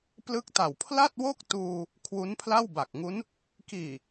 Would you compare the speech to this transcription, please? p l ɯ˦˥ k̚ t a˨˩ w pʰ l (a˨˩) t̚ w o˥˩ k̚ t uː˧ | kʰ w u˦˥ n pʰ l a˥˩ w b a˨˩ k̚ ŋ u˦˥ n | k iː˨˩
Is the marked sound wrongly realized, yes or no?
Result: yes